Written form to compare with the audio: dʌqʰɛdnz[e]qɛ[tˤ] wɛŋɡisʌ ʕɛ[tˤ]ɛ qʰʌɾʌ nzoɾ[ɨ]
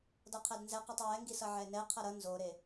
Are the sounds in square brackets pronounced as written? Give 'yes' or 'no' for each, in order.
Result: no, yes, no, no

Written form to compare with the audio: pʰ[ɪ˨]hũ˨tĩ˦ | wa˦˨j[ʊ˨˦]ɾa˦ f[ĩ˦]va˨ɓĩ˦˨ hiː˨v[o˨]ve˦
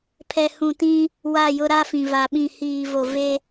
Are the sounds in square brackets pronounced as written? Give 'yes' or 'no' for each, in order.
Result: no, no, no, yes

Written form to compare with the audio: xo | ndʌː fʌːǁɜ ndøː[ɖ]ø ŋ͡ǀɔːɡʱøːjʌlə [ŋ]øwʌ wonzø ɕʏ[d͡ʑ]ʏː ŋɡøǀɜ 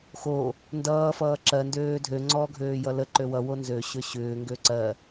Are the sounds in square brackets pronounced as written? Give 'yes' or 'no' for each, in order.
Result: no, no, no

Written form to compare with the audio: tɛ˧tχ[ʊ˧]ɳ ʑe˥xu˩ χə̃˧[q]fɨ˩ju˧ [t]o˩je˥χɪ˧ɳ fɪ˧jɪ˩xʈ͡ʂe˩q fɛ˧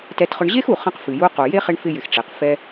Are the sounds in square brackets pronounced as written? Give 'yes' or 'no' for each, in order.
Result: yes, yes, no

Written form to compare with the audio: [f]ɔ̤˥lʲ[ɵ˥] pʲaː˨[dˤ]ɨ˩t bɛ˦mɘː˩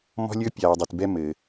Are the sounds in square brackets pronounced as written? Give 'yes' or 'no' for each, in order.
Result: no, yes, yes

